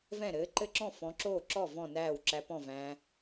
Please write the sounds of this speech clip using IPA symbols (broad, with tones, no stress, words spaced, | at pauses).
vɛ̃˥˩ɾɘː˨˥ ǃɘ˥˩ǁɔ̃˥˩ fɔ̃˨˥ǁoː˥˩ǁɔ˥˩ vɔ̃˥˩næː˥˩w ǁæ˨˥pɔ̃˥˩ væ̃˨˥